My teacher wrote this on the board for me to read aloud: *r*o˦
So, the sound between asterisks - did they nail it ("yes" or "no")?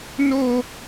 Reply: no